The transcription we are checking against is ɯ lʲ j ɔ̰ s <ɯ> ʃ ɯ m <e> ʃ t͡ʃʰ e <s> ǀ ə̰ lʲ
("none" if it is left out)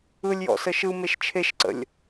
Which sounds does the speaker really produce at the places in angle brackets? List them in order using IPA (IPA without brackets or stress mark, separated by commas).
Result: ə, e, ʃ